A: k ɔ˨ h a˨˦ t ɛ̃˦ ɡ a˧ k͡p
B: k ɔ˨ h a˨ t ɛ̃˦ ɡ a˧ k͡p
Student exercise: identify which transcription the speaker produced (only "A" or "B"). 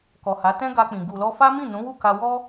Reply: A